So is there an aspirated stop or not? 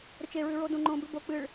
no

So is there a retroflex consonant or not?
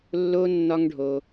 yes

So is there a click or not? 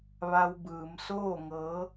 no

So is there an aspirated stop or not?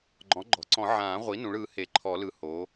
yes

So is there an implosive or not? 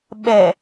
yes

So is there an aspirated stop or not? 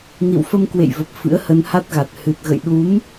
no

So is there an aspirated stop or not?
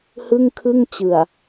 yes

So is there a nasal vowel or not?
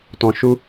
yes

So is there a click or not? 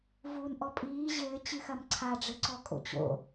yes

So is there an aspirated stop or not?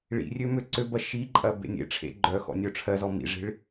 yes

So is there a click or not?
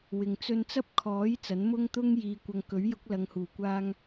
no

